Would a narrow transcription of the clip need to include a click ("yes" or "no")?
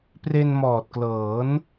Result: no